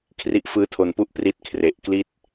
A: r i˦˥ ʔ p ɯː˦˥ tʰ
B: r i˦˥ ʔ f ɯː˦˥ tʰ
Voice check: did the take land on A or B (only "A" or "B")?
B